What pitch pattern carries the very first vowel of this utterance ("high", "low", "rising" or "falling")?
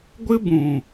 high